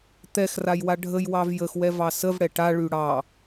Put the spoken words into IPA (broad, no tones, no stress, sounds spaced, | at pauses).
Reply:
t̪ ɛ x r a j w a ɖʱ ə j w ɑ v j ə x w ɛ v ɑ s ə v ɽ ɛ ʈ a ɭ y ɽ ɑ